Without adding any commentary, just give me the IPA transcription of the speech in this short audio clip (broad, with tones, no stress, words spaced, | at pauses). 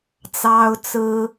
t͡sɑ˥ʊ̯t͡sɹ̩˥